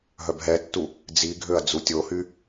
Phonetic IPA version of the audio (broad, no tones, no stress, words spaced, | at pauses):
ɦœbɦɛtːu | d͡ziɡʱøɐ̯ d͡zutʲohy